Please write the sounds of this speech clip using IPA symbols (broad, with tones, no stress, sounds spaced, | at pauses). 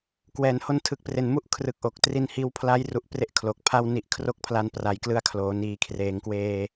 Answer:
k w ɛː˨˩ n h o˧ n tʰ ɯ˨˩ k̚ p r e˨˩ n m u˦˥ ʔ kʰ r ɯ˨˩ k̚ ʔ o˨˩ k̚ t r i˧ n h iː˧ w pʰ l a˦˥ j r u˨˩ ʔ p r e˥˩ ʔ kʰ l o˨˩ k̚ pʰ a˥˩ w n i˨˩ ʔ kʰ r o˥˩ k̚ pʰ l a˧ n p r a˩˦ j k l ɯ˧ a̯ kʰ l oː˩˦ n iː˩˦ kʰ r eː˩˦ ŋ k w eː˧